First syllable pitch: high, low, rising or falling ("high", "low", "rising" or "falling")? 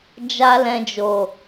high